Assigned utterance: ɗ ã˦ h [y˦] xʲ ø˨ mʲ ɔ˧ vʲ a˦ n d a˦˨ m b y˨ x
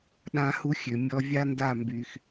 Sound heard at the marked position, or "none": u˦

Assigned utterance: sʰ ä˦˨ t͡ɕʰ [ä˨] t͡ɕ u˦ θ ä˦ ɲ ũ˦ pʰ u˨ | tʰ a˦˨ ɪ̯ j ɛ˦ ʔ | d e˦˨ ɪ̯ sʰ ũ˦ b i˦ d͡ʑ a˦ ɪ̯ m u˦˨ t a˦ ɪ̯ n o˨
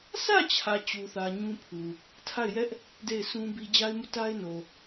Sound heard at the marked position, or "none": ä˨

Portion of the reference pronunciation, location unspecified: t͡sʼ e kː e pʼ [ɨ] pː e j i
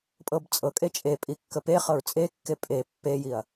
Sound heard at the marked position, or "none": e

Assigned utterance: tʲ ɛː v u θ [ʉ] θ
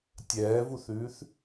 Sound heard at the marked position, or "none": ʉː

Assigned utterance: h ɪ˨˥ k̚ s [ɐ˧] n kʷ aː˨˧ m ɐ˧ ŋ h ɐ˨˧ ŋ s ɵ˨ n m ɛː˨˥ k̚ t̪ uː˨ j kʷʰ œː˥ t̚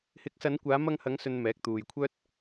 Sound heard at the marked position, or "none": ɐ˨˧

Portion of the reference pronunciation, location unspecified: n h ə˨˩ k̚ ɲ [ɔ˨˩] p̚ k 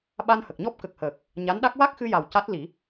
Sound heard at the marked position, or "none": ɔ˦˥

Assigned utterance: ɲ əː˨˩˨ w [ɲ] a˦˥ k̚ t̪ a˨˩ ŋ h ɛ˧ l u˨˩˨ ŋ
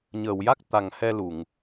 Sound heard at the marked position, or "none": j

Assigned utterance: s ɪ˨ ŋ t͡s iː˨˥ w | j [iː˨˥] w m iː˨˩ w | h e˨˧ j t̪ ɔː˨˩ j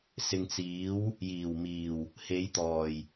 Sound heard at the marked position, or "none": iː˨˩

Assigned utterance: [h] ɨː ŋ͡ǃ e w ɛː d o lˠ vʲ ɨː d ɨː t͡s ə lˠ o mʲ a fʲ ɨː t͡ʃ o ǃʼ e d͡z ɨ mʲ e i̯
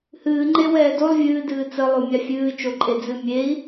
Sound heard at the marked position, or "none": h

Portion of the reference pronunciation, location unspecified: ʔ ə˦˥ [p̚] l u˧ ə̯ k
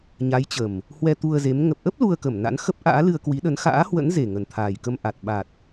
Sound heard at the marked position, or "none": p̚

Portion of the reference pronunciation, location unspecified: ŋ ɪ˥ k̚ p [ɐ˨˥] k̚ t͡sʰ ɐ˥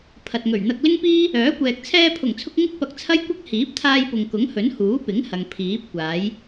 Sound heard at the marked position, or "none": ɐ˧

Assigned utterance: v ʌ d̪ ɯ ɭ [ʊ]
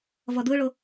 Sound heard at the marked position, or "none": ʊ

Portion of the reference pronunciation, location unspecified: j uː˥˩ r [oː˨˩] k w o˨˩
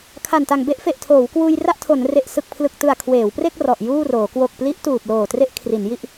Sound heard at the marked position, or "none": oː˩˦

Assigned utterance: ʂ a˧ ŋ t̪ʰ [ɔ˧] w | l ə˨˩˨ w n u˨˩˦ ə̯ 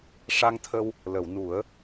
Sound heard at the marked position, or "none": ə˧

